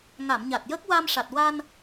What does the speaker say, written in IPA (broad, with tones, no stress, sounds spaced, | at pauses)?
ŋ a˨˩˨ m ɲ a˨˩ t̚ j ə˦˥ k̚ w a˧ m ʂ a˨˩ t̚ w a˧ n